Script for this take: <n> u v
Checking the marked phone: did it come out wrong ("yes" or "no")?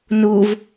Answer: no